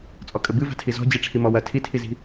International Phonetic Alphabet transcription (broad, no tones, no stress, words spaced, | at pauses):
t͡sʼɔkʼɘbɨ va̤tʰizɔ̤ d͡ʑiʈ͡ʂʰimɔwɐ tʰitʰizi̤